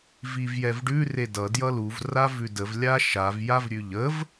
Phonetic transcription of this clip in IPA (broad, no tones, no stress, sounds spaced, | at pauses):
v i v j ɛ v ɖ ʉ r e d ʌ d j ʌ l u v r a v ʉ d ə v lʲ a ʃ a v j a v ɾʲ ʉ ʎ ə v